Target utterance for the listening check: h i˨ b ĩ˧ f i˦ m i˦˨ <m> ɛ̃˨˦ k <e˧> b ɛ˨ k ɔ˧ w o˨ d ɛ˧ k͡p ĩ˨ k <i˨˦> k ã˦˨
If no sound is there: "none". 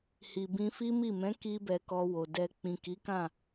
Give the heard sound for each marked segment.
m, i˧, i˨˦

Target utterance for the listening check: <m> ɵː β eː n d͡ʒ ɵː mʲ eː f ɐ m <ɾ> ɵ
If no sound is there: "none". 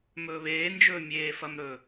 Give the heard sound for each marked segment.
m, ɾ

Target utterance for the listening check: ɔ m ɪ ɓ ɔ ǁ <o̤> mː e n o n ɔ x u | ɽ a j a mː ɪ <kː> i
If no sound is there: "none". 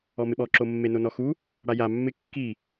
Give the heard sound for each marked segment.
o, kː

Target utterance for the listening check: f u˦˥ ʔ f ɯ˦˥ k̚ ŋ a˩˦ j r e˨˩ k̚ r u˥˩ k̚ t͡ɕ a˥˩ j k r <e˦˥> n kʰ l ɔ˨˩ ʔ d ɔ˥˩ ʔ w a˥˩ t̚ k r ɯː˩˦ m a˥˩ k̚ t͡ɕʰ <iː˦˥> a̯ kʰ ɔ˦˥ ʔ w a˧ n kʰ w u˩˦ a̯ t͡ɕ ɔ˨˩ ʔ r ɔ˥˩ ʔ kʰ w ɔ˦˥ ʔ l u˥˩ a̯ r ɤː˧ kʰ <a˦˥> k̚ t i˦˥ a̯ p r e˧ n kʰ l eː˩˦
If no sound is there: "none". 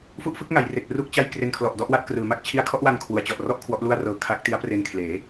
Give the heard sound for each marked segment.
e˧, i˦˥, a˦˥

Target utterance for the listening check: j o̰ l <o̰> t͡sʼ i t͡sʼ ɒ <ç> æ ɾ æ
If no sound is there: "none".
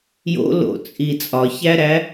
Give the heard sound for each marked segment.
o̰, ç

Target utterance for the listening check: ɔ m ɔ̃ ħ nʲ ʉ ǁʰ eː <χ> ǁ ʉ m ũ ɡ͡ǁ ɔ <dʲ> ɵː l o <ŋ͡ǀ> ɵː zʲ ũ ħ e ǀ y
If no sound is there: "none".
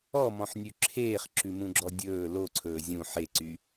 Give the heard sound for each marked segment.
χ, dʲ, ǀʰ

